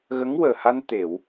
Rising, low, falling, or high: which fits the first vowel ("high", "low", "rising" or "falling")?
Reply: rising